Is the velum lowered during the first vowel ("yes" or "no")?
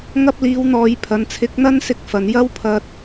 no